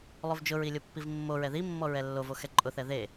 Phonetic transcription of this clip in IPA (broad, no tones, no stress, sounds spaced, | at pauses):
lˠ o v d͡ʒ ʊ ɹ i lʲ o pː i v mː o ɹ ɛ ð i mː ɔ ɹ ɛ lː o v o x ɛ ǃʼ ʊ θ ɛ ð e